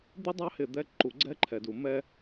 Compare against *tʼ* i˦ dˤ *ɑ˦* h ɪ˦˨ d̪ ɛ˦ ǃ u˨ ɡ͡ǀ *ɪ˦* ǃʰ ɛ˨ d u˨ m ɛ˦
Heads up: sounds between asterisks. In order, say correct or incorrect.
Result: incorrect, correct, incorrect

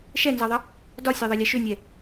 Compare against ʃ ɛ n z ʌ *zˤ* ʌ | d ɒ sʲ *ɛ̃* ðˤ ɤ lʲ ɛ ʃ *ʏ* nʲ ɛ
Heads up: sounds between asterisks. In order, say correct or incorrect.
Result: incorrect, incorrect, correct

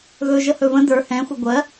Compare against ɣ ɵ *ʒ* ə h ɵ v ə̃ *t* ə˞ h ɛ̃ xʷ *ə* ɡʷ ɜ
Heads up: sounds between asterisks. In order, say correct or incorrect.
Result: correct, incorrect, correct

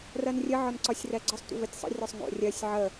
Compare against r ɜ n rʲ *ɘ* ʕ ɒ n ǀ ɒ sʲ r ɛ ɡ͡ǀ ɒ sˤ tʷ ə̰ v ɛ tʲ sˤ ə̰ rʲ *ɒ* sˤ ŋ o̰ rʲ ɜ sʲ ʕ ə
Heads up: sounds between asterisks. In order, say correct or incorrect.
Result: correct, correct

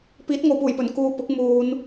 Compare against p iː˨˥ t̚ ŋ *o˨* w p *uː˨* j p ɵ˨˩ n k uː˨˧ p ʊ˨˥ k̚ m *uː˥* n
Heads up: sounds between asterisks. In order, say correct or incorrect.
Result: correct, incorrect, incorrect

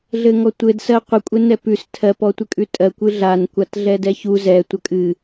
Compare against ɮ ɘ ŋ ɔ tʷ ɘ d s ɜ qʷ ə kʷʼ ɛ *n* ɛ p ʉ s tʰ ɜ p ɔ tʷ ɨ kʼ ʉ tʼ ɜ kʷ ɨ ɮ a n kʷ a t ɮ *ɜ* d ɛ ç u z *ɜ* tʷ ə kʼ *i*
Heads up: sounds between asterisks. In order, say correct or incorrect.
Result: correct, incorrect, incorrect, incorrect

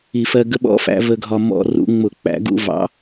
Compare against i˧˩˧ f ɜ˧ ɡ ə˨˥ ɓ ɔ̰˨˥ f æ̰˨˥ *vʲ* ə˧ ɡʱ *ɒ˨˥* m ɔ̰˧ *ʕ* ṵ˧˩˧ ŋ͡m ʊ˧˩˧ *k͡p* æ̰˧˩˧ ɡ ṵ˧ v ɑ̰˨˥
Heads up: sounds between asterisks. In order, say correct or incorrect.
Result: incorrect, incorrect, incorrect, correct

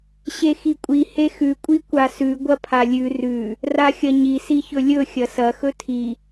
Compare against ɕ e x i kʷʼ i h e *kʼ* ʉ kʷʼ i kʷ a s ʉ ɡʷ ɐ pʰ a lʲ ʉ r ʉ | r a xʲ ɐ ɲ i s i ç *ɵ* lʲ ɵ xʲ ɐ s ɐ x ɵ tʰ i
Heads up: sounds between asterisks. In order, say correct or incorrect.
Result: incorrect, correct

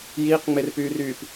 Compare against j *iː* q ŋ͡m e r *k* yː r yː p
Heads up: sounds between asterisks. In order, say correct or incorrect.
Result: correct, incorrect

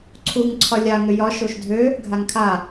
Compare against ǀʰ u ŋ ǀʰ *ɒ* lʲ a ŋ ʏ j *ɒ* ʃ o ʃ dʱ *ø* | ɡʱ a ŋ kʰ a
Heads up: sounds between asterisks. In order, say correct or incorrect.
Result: correct, correct, correct

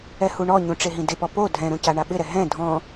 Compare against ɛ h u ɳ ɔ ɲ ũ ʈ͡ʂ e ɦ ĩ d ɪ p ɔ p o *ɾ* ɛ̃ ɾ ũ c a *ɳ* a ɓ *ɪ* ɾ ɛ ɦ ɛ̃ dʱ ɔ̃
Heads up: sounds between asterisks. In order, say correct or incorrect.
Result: incorrect, correct, correct

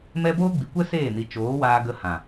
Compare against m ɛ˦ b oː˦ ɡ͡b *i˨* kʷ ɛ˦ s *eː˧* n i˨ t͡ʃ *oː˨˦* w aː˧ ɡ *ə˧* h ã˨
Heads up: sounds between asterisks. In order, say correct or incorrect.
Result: correct, incorrect, correct, correct

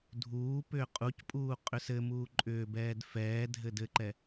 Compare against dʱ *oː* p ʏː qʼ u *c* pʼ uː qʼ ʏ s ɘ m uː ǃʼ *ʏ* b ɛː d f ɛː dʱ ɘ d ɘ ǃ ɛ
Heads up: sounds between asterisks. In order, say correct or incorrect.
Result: incorrect, correct, incorrect

